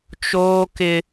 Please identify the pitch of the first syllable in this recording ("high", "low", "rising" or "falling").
high